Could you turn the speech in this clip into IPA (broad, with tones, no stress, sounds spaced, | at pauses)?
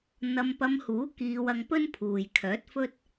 n̪ ɐ˧ m p ɐ˧ m h uː˨˥ k iː˧ w ɐ˧ ŋ p ɵ˥ n pʰ uː˨ j kʰ œː˨˥ t̚ f ɵ˥ t̚